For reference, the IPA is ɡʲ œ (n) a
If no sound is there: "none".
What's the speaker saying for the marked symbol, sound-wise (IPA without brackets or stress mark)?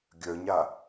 ɲ